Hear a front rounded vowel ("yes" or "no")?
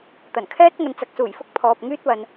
yes